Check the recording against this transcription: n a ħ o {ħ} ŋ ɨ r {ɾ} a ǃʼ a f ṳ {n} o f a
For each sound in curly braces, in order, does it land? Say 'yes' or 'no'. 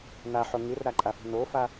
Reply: no, yes, yes

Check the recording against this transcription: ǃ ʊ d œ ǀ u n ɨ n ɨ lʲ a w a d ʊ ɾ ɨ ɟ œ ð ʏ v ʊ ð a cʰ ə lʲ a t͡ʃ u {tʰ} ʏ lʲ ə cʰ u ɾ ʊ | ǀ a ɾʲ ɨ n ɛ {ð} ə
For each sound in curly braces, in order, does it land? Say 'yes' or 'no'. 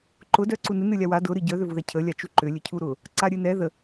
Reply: no, yes

